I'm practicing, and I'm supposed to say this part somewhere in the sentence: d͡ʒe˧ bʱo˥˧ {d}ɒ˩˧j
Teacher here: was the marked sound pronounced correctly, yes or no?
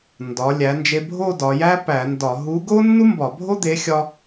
yes